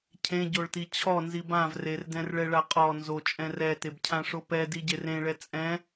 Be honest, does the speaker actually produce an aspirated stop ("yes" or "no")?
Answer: yes